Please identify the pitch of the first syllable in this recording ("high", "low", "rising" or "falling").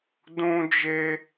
high